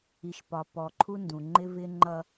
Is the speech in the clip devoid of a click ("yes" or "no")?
no